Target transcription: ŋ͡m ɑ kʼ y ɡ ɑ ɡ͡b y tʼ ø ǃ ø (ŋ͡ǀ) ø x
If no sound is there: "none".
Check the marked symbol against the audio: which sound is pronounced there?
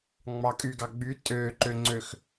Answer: ŋ͡ǀ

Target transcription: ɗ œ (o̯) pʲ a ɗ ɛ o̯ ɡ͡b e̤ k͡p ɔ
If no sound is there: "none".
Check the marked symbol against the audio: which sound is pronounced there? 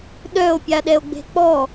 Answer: o̯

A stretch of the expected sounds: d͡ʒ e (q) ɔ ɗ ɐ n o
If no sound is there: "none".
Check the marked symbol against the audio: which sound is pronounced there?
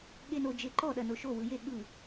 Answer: ǃ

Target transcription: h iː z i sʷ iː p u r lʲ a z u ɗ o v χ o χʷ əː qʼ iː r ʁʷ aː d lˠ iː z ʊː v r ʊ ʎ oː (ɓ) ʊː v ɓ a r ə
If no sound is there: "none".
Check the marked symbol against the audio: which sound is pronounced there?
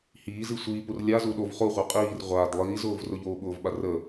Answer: ɓ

